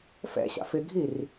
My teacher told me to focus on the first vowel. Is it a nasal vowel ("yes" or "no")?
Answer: no